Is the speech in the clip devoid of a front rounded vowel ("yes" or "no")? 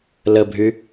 no